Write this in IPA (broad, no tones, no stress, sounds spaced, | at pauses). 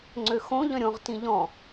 ŋ͡ǀ ø x õ ʎ œ̃ ɾʲ õ ʁ t ĩ ʎ ɔ̃